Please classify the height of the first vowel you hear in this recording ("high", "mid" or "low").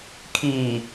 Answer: high